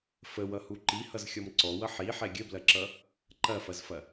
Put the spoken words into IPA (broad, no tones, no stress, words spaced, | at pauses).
fəwʌhu ǃihʌzxʲɔm ǀɔwʌ ħiħɛ ɡʲəblɐǁʌ | ǃɐfɐzfɐ